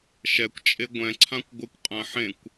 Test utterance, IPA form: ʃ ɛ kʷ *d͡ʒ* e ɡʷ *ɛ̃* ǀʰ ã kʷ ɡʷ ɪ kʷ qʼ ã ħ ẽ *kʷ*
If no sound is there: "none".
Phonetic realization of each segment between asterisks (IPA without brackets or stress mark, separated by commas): t͡ʃʼ, ɛ̃, kʷ